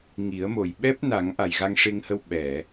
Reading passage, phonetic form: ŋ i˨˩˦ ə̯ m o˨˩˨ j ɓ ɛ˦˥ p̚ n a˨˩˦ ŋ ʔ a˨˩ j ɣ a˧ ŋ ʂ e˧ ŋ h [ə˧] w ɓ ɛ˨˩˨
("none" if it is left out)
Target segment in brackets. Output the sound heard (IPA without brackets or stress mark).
ə˧